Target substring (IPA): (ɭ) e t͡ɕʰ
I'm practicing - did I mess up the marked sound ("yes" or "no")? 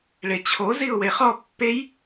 no